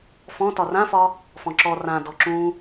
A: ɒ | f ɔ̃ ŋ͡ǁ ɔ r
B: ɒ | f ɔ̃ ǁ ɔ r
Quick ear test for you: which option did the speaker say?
B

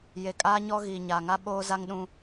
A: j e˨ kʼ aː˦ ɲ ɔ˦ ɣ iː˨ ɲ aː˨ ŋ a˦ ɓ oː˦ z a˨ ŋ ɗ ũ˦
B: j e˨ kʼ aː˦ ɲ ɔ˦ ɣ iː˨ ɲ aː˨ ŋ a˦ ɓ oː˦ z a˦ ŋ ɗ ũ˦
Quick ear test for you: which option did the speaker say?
B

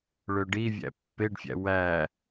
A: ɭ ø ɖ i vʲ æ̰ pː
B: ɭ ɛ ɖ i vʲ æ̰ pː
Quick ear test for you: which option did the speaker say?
A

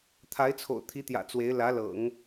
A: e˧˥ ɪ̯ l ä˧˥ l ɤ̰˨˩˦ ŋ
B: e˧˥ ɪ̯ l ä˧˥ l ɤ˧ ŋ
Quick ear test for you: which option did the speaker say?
A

